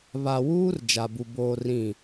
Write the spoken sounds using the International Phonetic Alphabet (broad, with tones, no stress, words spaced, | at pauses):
βa˨wuː˦r d͡ʒa˨bu˨ boː˦rĩ˦˨